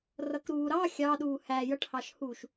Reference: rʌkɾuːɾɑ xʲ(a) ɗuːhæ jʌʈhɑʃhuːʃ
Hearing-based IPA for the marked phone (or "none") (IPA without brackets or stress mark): ɑ